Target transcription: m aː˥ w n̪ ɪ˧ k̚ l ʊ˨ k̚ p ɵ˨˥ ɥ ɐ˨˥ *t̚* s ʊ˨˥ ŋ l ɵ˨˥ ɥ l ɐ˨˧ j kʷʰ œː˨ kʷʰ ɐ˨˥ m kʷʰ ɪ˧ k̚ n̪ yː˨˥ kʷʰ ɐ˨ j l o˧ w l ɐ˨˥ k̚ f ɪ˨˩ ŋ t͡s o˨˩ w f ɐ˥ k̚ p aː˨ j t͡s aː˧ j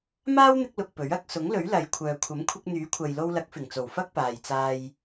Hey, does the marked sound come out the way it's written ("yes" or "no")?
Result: no